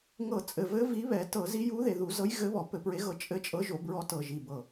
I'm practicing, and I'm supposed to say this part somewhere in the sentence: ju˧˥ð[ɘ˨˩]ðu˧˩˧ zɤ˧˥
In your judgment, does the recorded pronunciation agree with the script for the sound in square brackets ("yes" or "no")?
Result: no